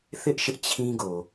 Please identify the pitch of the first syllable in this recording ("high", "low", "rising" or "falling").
high